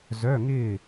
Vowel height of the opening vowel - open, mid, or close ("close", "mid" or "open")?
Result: mid